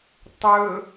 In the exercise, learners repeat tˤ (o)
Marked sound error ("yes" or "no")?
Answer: yes